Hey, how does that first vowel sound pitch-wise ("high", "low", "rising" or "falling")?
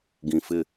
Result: low